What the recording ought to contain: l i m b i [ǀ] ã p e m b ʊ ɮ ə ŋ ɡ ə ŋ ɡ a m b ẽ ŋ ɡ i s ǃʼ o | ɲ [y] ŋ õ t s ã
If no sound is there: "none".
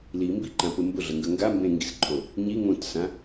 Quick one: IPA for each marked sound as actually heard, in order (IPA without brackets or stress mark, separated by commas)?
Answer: ǃ, i